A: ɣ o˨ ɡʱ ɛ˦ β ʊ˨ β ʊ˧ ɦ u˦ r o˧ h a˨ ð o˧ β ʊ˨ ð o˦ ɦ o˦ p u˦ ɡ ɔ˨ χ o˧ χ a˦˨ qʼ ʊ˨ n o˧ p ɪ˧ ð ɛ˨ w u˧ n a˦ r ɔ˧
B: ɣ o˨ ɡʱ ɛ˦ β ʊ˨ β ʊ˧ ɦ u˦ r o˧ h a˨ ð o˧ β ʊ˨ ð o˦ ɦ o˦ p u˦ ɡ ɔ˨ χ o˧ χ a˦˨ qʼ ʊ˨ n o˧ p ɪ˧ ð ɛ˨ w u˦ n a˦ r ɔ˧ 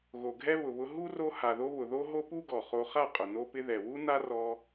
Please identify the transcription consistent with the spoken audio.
B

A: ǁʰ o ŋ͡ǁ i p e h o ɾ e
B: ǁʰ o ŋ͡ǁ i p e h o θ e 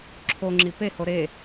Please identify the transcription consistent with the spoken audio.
A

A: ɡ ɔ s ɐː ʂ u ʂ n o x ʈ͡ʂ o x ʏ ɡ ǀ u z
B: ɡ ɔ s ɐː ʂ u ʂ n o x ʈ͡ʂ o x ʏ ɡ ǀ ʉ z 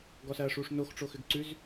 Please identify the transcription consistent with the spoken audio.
B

